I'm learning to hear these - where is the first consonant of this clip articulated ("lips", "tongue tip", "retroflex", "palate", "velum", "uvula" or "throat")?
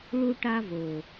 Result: retroflex